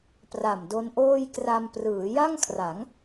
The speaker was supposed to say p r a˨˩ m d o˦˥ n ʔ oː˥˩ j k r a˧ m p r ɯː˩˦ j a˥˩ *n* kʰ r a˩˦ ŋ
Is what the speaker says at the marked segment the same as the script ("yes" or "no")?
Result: no